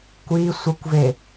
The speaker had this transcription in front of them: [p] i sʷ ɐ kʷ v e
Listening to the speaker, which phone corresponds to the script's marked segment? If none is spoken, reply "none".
kʷ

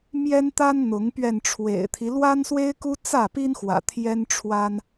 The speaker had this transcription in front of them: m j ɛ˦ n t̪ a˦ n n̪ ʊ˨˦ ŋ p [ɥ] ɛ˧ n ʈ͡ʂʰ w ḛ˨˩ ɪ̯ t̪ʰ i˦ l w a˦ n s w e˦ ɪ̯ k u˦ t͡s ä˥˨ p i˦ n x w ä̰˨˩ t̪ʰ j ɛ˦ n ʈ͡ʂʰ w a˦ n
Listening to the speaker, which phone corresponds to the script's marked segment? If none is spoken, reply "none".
ɥ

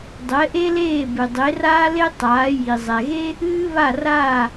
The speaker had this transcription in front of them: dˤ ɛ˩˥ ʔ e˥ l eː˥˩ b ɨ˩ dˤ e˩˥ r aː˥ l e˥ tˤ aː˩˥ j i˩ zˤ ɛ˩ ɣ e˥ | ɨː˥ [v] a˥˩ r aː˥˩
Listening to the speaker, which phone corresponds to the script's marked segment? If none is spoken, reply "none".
β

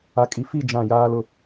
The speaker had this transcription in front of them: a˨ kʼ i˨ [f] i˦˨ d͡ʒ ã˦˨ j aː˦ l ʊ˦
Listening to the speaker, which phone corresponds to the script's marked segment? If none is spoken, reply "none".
f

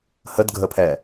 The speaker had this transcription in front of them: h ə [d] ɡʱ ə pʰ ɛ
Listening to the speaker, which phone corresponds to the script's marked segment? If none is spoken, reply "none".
d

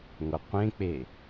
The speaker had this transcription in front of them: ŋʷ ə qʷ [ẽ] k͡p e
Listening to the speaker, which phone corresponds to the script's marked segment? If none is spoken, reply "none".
ẽ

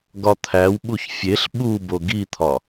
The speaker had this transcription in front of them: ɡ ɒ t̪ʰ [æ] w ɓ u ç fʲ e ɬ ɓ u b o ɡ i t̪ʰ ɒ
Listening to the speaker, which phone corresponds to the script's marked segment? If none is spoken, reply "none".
æ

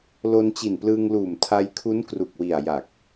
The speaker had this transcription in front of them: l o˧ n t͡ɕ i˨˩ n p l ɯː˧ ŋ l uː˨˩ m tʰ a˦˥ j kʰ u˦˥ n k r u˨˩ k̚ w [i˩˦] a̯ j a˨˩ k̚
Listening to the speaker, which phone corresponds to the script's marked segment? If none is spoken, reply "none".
i˨˩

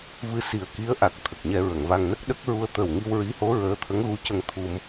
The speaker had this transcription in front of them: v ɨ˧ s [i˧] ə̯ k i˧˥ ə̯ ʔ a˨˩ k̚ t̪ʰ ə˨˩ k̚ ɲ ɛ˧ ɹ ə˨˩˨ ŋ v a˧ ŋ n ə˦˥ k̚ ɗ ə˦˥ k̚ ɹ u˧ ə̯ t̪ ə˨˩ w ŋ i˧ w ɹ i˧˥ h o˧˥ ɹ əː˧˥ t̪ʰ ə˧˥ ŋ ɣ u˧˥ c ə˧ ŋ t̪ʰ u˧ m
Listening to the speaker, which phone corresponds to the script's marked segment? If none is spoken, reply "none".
i˨˩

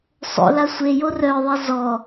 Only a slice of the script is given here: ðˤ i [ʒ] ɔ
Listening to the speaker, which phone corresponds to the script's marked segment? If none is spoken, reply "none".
z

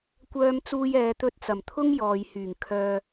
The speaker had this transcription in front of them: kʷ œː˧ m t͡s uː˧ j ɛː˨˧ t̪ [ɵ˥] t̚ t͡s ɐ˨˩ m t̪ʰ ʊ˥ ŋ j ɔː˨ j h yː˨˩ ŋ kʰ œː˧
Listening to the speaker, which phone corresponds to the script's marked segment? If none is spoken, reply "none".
ɵ˧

